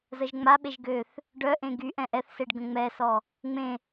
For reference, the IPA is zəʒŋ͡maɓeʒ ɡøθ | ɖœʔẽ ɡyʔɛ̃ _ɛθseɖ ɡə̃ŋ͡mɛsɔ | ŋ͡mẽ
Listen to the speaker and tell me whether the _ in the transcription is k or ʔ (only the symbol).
ʔ